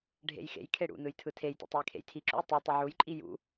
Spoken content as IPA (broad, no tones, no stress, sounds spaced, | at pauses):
ɖʱ ḛ j x ḛ j kʰ e ɽ ṵ n ɯ j tʰ ɯ tʰ e j t ḛ tˤ u j kʰ ḛ j tʰ i ǁ ṵ j tˤ u tˤ ɯ ʕ u j ǃʼ i j ṵ